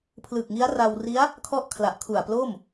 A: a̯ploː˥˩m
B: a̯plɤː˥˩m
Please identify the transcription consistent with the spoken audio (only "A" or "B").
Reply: A